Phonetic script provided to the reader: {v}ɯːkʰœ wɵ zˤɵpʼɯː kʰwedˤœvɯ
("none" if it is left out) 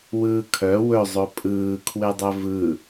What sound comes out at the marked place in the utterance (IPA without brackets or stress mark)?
w